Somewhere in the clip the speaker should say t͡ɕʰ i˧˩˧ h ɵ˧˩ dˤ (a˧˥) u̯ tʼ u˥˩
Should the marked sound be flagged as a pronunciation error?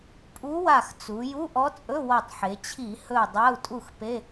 yes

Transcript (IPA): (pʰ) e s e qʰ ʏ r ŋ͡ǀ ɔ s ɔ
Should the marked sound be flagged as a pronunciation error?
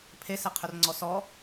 no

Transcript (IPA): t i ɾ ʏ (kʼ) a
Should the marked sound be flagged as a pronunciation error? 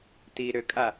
no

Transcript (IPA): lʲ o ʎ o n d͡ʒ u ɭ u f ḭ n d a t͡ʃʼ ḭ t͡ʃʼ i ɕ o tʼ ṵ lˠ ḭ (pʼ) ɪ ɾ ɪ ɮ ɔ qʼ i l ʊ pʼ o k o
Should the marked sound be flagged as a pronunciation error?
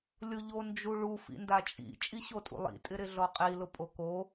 yes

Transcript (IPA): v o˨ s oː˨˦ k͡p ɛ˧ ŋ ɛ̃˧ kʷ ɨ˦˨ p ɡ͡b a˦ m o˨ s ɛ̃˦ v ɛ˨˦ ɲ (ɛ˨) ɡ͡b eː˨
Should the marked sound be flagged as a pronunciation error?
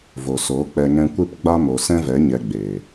yes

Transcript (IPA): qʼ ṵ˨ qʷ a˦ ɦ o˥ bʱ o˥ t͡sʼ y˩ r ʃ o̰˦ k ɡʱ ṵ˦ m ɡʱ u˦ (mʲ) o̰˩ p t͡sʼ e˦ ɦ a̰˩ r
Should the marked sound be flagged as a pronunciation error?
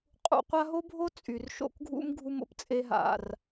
yes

